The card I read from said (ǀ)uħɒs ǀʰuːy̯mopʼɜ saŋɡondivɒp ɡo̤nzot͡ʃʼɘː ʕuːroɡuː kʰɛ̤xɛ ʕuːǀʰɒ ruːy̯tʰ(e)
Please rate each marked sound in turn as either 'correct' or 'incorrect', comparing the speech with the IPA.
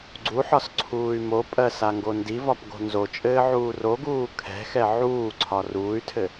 incorrect: ɡ͡ǀ, incorrect: ɘ

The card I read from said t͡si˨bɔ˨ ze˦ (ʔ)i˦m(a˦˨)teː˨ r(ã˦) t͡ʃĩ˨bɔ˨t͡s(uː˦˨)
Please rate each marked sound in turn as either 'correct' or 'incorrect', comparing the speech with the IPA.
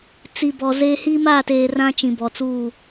incorrect: h, correct, correct, correct

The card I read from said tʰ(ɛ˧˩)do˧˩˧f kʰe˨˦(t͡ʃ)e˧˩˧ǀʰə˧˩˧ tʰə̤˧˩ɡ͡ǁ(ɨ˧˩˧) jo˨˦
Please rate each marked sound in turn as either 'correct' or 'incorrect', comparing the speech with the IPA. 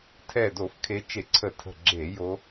correct, correct, incorrect: e˧˩˧

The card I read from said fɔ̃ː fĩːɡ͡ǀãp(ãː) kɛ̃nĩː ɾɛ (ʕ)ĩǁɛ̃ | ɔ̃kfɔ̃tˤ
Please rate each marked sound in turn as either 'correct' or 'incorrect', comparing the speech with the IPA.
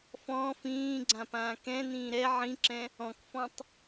correct, correct

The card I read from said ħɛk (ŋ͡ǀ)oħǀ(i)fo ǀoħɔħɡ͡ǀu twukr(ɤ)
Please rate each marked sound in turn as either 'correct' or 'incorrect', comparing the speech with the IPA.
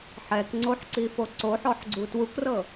correct, correct, correct

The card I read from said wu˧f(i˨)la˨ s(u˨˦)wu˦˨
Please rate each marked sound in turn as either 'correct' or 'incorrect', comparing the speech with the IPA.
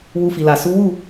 correct, correct

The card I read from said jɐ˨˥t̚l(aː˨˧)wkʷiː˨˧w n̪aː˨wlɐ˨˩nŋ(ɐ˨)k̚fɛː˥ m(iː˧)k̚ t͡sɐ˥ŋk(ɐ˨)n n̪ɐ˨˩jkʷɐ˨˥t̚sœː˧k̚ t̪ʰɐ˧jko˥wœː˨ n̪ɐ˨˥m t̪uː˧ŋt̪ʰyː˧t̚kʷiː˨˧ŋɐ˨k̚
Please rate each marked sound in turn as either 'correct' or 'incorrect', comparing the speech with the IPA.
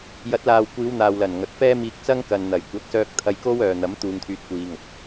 incorrect: aː˨, correct, correct, correct

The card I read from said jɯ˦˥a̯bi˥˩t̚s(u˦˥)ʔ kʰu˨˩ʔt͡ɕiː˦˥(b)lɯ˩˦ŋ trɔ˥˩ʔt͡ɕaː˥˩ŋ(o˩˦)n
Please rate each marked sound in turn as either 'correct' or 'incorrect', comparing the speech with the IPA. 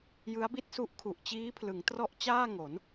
correct, incorrect: pʰ, correct

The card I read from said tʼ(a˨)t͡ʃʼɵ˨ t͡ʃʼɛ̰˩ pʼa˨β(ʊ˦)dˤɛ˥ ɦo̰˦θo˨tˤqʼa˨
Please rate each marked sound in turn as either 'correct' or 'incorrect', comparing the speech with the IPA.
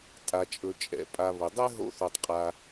correct, incorrect: ʊ˩

